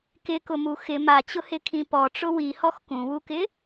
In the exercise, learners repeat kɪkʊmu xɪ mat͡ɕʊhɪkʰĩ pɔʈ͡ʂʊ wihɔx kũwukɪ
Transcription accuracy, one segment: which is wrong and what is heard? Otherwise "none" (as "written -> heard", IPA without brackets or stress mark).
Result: none